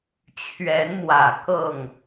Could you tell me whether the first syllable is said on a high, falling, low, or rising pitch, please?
rising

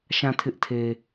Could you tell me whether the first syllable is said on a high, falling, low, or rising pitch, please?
falling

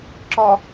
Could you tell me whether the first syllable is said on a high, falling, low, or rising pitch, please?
low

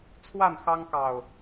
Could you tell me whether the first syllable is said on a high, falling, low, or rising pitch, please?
falling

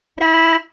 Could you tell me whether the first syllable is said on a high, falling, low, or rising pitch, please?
high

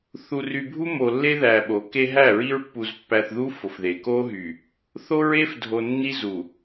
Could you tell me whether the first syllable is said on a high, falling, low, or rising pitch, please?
low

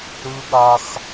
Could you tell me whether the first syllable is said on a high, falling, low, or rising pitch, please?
high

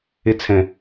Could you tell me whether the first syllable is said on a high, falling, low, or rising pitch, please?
high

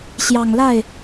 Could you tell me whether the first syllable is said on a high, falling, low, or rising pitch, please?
low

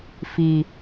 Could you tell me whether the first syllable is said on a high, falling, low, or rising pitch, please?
low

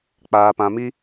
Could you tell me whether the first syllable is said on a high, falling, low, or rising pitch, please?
low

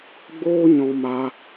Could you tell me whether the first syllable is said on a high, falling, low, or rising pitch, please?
high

